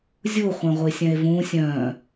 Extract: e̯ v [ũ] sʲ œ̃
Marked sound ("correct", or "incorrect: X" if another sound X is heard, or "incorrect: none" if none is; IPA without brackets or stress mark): correct